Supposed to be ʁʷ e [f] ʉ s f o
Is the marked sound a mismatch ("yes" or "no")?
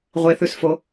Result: yes